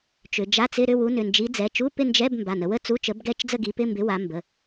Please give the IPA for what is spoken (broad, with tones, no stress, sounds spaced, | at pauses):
t͡ʃ ʏ˩˧ d͡ʒ a˧˥˧ t͡s ɪ˧˥˧ ɾ ʏ˥˧ w u˨˥ n ʏ˩˧˩ n d͡ʒ i˨˥ d͡z ɛ˩˧˩ t͡ʃ u˧˥˧ p ɪ˥˧ n d͡ʒ ɛ˧˥˧ b m b a˩˧˩ n ə˩˧ w ə˥˧ t͡s u˧˥˧ t͡ʃ ə˨˥ b ɡ ɛ˥˧ t͡ʃ d͡z ə˥˧ ɡ i˨˥ p ɪ˧˥˧ m b ɪ˨˥ w a˨˥ m b ə˩˧˩